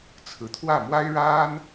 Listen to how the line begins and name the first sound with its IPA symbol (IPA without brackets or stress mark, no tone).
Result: t͡sʰ